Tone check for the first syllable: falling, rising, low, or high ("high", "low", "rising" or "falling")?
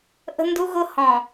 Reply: high